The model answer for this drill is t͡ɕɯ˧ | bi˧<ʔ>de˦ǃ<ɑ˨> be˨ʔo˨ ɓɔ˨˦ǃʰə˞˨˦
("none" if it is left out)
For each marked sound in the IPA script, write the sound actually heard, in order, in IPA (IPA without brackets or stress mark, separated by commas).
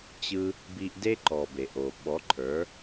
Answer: ʔ, ɔ˨